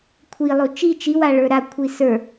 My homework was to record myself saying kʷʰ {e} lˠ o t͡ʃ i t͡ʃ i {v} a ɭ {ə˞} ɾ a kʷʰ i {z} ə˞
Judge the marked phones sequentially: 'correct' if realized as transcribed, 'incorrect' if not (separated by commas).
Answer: incorrect, incorrect, correct, incorrect